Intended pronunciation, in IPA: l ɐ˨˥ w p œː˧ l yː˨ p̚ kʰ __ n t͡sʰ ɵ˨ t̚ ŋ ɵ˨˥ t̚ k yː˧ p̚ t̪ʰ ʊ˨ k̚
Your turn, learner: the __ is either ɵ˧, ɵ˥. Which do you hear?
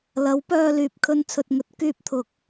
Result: ɵ˧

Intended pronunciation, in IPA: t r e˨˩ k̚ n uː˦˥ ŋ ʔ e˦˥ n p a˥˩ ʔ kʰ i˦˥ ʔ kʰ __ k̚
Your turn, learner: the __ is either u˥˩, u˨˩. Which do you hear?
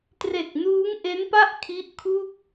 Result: u˥˩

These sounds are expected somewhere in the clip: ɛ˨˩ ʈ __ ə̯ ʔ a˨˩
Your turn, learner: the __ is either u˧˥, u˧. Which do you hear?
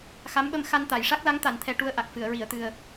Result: u˧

